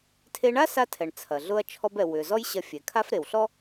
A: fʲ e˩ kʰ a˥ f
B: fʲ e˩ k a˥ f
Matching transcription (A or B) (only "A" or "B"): A